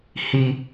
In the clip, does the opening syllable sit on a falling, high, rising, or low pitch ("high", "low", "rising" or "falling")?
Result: high